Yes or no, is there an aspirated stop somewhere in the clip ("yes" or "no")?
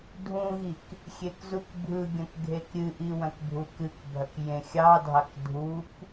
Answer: no